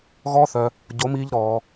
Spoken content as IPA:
ɣ ɔ˦ θ œ˧ | ɟ o˨˦ m iː˧ ʎ ɾ ɔː˧

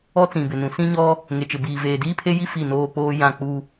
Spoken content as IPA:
ɔ˦ t͡s ĩ˨ b ɪ˨ n ũ˨ s ĩ˦ ɲ ɔ˦ | ŋ e˨ t͡ʃ ɪ˨ b iː˨ v eː˨ d iː˦ pʰ e˦ j i˦ f i˦˨ n oː˦ k͡p oː˦ j ã˦˨ k͡p u˦

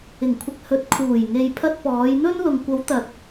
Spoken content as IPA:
ɪ˨˩ ŋ kʷʰ ɪ˨ k̚ h ɵ˨˥ t̚ kʰ uː˨˩ j ŋ e˨ j pʰ ɐ˧ t̚ p ɔː˨˧ j n̪ ɵ˥ n l ʊ˨ ŋ kʷ ɐ˨˧ w t̪ ɐ˨ t̚

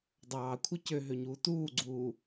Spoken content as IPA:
dˤ ɑː kʷʰ ɯ c ø ɦ ø ɲ uː t uː ɡ͡ǀ uː

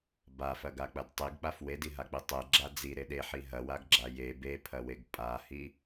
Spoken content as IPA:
b a f ɐ ɡ a k͡p ɐ d tˤ i ɡ k͡p a f w e d i ɦ a k͡p i tˤ e ɡ͡ǁ a d͡z i ɾ e ɗ e ħ i ɦ ɐ w a ɡ ɡ͡ǁ a j e b e pʰ ɐ w e ɡ pʼ a h i

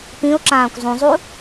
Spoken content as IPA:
p ĩ ʊ̯ ǁ ãː kʷ zˤ ũ zˤ u

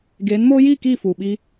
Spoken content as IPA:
ɡ eː˨˦ n m oː˦ j iː˦˨ k iː˦˨ f uː˨ ɓ i˦

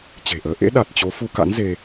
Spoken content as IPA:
t͡ɕ e̤˨˩ ʔ əː˨˦ ʔ ḛ˧˥ ɗ a˨˩ t̚ t͡ɕ o˨˦ f u˧ k a̰˧˥ n z e˧

